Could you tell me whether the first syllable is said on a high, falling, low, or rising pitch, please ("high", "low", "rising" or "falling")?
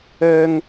high